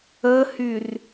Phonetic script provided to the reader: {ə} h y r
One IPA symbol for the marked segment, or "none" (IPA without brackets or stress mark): ə